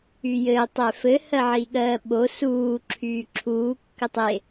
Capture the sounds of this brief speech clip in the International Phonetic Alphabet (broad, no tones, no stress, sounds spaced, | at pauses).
y j ɘː tˤ ɛ f ɘ h ɜ ʕ i ɠ ɜː ɓ o s uː ǁʰ yː ǁʰ uː kː ɘ tˤ e